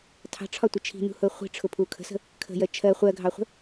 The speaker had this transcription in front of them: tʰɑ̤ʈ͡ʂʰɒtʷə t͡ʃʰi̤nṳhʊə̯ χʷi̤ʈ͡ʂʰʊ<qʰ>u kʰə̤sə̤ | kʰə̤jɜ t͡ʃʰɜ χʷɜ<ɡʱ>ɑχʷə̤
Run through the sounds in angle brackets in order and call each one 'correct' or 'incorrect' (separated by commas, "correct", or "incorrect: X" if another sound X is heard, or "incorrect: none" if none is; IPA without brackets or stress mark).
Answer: incorrect: pʰ, correct